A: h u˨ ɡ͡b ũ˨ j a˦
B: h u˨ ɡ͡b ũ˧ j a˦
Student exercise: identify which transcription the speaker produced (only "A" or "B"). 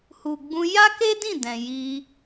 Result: B